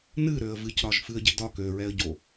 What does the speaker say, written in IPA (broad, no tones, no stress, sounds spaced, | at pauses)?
n ɨ ɾ ø ə̯ v ɨ c ɾ ɒ ʒ f ɨ ə̯ ɟ e̤ d ɒ k ø ɹ ɛ ə̯ ɟ o